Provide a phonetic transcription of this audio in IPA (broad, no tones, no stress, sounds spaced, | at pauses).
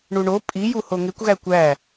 ɳ u ɳ o pʼ i j u h o ŋ e kʷ ɣ æ kʷ æ